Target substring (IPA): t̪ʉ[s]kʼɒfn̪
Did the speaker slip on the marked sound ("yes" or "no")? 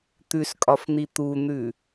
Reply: no